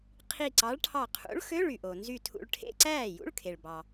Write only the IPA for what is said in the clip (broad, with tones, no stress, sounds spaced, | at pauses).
qʰ i˧˩ ǀ ɑ˨˥ ɭ ʈʰ ɑ˧˩ qʰ ṵ˨˥ ɭ x ø˧˥˧ ɭ y˩ ʔ o˩ n z y˧˩ tʰ ṵ˧˩ ɭ ʈʰ ḛ˧˥˧ ǀ æː˥˩ j ṵ˧˥˧ ɭ kʰ e˩ ɭ b ɑ˩